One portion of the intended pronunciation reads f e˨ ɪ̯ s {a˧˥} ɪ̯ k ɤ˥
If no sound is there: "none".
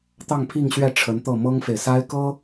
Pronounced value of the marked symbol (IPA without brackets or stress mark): a˥